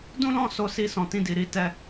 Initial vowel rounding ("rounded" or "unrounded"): rounded